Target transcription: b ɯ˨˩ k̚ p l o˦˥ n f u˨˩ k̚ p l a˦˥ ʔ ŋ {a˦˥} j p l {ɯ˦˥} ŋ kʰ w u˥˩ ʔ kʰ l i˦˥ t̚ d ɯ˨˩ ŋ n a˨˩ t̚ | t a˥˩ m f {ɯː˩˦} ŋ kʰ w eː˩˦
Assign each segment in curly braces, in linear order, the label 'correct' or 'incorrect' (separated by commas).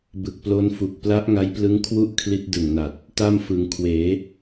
correct, correct, incorrect